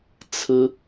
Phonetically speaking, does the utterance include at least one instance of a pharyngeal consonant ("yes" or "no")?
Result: no